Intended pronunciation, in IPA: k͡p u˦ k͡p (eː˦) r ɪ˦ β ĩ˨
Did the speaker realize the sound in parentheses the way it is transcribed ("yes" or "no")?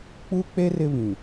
no